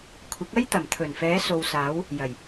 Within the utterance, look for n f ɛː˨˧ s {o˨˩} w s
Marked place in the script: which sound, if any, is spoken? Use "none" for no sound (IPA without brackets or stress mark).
o˨